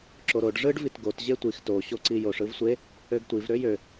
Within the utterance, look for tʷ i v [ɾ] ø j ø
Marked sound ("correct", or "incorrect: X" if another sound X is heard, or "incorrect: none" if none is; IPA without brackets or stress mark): correct